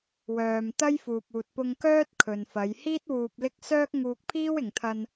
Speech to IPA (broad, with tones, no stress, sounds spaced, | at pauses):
w œː˨ m t̪ ɐ˥ j f uː˨ p̚ uː˨ t̚ p ʊ˧ ŋ k œː˥ t̚ kʰ ɵ˨ n f ɐ˨˧ j h iː˥ t̚ w uː˨ p̚ l ɪ˧ k̚ s œː˥ k̚ ŋ uː˧ k̚ pʰ iː˥ w ɪ˨ ŋ t̪ʰ ɐ˧ n